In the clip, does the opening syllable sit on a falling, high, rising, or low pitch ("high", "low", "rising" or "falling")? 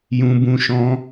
high